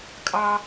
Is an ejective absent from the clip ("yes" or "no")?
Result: no